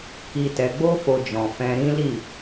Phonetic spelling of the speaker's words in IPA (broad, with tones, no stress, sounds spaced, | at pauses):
k i˧ t ɛ˧ ɡ͡b o˦ f o˧ d͡ʒ ɔ̃˨ f ɛ̃˧ ɾ ĩ˦ l i˦˨